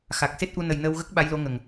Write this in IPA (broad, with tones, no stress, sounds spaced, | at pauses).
x a˨˩ k̚ s e˦˥ t̚ ʔ u˧ n ə˨˩ j n əː˧ w ɣ ə˦˥ k̚ ɓ a˧˥ j l o˧˥ ŋ ə˨˩ ŋ